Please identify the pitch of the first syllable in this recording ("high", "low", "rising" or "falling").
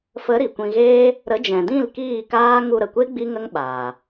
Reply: rising